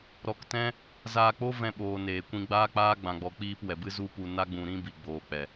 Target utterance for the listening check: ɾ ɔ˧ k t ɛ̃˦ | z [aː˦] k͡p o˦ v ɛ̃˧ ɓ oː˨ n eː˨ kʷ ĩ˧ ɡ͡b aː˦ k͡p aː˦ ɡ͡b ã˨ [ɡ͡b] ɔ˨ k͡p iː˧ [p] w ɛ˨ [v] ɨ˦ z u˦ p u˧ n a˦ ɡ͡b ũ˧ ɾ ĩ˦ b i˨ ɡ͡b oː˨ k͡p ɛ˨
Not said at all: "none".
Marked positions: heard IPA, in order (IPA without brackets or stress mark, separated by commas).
aː˧, ɡ͡b, p, b